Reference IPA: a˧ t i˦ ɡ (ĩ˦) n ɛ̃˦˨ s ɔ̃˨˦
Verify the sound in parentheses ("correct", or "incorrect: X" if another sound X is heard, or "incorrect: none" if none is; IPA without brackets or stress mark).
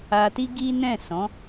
incorrect: i˦